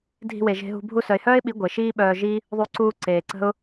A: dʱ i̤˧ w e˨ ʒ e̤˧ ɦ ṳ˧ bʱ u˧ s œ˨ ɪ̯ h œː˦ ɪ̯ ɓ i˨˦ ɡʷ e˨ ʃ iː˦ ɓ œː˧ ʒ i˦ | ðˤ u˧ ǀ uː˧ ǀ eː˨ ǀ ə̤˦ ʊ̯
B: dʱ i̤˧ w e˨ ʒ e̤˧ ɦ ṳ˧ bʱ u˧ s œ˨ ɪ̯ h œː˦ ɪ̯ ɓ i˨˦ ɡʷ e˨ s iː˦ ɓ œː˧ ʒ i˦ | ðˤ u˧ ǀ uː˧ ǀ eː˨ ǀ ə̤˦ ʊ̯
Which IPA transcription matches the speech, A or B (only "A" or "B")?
A